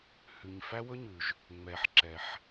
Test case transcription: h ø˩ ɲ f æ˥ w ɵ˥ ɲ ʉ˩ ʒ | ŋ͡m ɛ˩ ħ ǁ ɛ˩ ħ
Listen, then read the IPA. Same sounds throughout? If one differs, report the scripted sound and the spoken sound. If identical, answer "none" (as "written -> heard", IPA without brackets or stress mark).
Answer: ø˩ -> ʉ˩